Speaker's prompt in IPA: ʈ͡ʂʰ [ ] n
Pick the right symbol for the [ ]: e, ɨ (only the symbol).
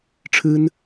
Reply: ɨ